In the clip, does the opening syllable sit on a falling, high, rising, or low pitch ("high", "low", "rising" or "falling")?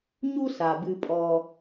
high